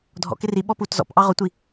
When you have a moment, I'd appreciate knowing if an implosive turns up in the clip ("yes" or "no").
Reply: yes